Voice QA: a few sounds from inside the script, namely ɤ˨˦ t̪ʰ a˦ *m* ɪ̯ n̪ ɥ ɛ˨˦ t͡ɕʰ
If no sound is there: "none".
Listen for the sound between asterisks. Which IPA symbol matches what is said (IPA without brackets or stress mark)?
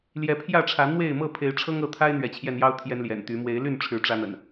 none